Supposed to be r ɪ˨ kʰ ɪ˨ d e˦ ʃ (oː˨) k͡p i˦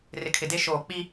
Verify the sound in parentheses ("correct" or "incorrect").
correct